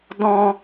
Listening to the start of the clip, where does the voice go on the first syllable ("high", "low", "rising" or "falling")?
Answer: high